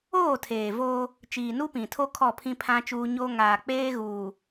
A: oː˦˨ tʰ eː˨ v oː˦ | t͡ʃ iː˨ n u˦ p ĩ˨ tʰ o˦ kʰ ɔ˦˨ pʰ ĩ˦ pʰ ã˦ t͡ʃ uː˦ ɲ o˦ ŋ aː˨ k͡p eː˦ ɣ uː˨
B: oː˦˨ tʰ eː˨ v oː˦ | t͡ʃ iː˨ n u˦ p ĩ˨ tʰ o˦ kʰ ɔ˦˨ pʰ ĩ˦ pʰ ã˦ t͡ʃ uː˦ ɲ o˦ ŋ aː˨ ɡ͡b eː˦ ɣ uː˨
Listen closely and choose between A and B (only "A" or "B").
A